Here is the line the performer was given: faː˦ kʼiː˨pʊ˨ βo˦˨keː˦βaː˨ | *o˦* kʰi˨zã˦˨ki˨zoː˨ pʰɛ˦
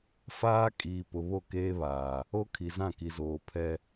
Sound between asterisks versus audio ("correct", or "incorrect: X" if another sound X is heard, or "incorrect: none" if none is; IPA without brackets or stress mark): correct